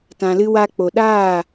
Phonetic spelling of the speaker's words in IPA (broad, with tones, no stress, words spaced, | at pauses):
tã˧lɨ˦wa˦k͡po˧ ɗaː˦˨